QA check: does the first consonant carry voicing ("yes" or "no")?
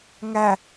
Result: yes